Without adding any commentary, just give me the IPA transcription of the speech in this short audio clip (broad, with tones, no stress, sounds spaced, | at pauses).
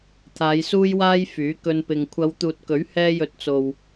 t̪ʰ aː˨˧ j s uː˥ j w aː˥ j f yː˨˥ k ɵ˧ n p ɪ˨ ŋ kʷʰ ɐ˨˧ w t̪ uː˨ t̚ k ɵ˨˥ ɥ h ɛː˧ j ɵ˨˥ t̚ t͡s o˨ w